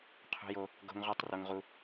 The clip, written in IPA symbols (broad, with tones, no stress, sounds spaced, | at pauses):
qʰ ṳ˥ j o˥ | ɡ o̤˥ ŋ ʁ u˥ tˤ r o˥ ŋ ʁ u˥